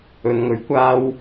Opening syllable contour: low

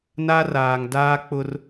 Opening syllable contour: high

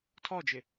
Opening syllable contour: falling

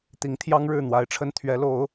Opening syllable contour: rising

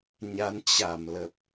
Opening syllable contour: rising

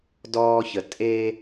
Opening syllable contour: low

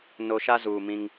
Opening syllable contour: low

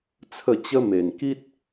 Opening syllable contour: falling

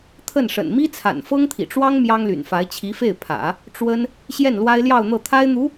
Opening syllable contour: falling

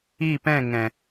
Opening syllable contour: falling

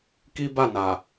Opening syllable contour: high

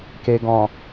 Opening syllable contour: low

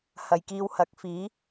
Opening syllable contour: low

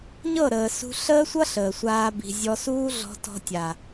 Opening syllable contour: falling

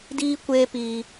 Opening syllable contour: high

